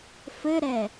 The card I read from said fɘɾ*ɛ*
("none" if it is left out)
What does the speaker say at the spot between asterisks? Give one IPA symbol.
ɛ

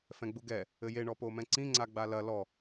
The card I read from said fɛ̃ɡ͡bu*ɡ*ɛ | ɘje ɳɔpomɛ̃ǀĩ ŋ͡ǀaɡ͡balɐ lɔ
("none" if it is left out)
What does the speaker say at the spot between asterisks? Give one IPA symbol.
ɡ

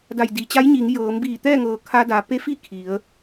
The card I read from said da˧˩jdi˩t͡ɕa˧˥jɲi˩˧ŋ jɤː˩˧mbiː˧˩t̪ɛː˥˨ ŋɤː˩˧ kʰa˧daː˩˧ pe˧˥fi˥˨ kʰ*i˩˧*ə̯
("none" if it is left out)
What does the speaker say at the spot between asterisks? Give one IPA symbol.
i˩˧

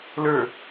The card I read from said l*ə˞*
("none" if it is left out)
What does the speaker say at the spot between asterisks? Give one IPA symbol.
ə˞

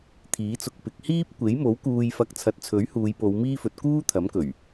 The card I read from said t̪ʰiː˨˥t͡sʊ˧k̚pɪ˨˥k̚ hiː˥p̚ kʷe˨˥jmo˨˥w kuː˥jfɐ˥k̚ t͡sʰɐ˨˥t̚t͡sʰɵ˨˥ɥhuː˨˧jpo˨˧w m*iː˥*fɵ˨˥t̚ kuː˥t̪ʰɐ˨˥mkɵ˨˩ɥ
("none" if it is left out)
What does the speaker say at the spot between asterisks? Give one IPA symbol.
iː˥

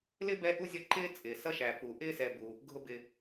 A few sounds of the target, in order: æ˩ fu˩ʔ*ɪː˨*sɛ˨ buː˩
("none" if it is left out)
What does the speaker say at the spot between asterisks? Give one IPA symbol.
ɪː˥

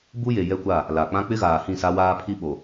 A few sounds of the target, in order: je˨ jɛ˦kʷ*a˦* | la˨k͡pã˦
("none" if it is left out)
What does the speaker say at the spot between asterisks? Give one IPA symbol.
a˦˨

